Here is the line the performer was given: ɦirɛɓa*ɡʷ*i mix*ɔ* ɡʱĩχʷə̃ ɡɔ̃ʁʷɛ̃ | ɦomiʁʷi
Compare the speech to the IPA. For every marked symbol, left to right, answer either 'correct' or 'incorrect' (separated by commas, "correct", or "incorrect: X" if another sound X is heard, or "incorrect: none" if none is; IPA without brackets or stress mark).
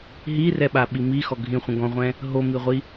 incorrect: ɓ, correct